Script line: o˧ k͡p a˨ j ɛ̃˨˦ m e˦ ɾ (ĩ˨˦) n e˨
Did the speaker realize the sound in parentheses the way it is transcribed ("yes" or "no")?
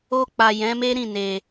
no